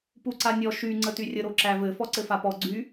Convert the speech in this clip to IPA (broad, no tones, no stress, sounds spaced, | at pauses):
p u ǀ a nʲ ɔ ʃ y ŋ͡ǀ ə t y rʲ ə ɾ o ǁ æ v ɘ f ɔ ǀ ɘ f a p ɔ ɡ͡ǀ y